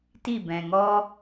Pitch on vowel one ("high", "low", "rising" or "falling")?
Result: falling